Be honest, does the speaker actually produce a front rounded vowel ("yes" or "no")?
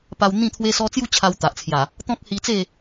no